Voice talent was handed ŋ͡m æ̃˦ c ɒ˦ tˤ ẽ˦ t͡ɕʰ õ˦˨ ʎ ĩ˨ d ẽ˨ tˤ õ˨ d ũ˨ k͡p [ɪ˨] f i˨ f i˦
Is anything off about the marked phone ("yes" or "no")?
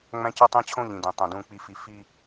yes